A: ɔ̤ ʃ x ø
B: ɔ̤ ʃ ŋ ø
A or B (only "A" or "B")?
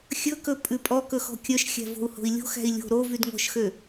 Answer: A